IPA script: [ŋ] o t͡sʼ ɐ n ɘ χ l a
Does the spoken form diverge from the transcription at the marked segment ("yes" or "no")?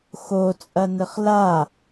yes